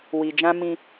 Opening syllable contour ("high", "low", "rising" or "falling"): low